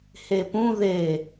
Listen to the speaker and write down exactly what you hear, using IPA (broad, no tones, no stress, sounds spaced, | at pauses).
h e p ũ ð e